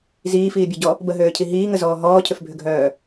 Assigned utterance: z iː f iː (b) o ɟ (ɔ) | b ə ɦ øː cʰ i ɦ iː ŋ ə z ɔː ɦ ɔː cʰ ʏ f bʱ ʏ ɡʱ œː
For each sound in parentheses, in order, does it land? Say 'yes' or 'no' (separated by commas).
no, yes